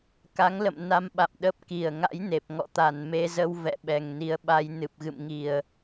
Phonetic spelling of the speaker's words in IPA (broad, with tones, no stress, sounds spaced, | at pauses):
k a˨˦ ŋ l ə̰˧˨ m n a˧ m ɓ a̰˧˨ m ɗ ə˦˥ p̚ k i˨˩ ə̯ ŋ a̰˧˥ j n e˨˩ p̚ ŋ ɔ̰˧˨ t̪ a˨˩ n m e˧ z ə˧ w v ɛ̰˧˨ ɓ ɛ˨˩ ŋ n i˨˦ ə̯ ɓ a˧ j n ɨ˨˩ p̚ ɣ ɨ̰˧˨ m ŋ i˨˩ ə̯